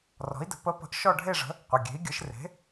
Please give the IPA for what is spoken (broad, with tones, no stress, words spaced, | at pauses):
rɔ̤˨˥i̯də̤˨˥ pə˨˥pə̤˨˥ʔ ʃɔ˥˧ɖʱe˥˧ʐə̤˨˥ | qʷə˩˧˩ɡʲe̤˨˥i̯ɡʲɯ˨˥ʃ re̤˨˥